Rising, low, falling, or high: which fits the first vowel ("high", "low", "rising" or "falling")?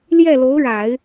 falling